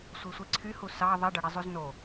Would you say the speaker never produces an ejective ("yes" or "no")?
yes